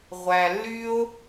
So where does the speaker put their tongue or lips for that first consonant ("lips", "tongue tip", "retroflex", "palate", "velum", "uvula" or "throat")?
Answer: uvula